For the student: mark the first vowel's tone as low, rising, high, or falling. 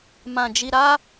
low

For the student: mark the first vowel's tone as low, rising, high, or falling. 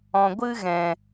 low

